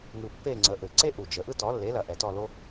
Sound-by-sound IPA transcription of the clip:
ŋ ɯ˧ pː e˥˧ ŋ͡ǀ ə˨˥ ʔ ɘ˨˩ ǀ e˥ ʔ u˨˩ d͡ʒ ə˨˩ ʔ ɯ˥˧ t ɔ˨˥ lː e˨˥ l ɐ˧ ʔ ɛ˨˩ t ɔ˥˧ l o˥

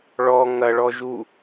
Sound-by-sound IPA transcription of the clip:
ɭ ɔ ŋ ɐ ɭ ɔ ʒ u

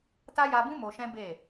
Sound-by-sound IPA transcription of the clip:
t a˦ j a˧ b ũ˦ m o˧ ʃ ɛ̃˦ b e˦˨

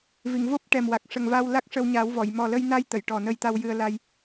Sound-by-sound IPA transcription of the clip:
v i˨˩˨ ŋ v o˦˥ p̚ ʈ ɛ˨˩ m w a˨˩ k̚ ʂ ə˨˩ ŋ v a˧ w l a˦˥ k̚ ʂ ə˧ w ɲ a˨˩˦ w v ɔ˨˩˨ j m ɔ˨˩ l ə˧ j n a˧ j t̪ ə˨˩˨ j ʈ ɔ˨˩ n ə˧ j t̪ a˧ w j ɨ˧ ə̯ l a˧ j

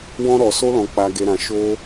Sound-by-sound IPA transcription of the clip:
w ɔ̃˧ ɾ ɔ˨ s o˧ l ɔ̃˨ k͡p a˨ ɡ e˨ ɾ ã˨ ʃ o˧

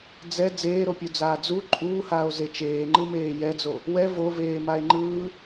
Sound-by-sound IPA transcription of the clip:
d͡z ɛ d͡z eː ɾ o pʲ u d͡z aː d͡z u ǃʼ uː h aː o̯ z e t͡ʃ eː ŋ͡ǃ ɯ m eː j ɛ d͡z o | w ɛ v o v eː m a e̯ ŋ͡ǃ ɯː

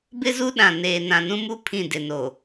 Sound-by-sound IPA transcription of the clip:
b ɪ˦ z u˦ ɗ ã˨ n eː˨ n ã˨ n ũ˦ m u˦ pʰ ĩ˦˨ d ɪ˨ n o˨

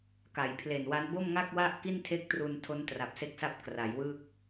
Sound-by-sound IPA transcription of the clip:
k a˩˦ j pʰ l e˨˩ n w a˦˥ n b o˥˩ m ŋ a˥˩ k̚ w a˥˩ ʔ k i˥˩ n tʰ e˥˩ k̚ t r u˧ n tʰ o˦˥ n t r a˨˩ p̚ s e˦˥ k̚ s a˦˥ p̚ k r a˩˦ j w ɯ˥˩ k̚

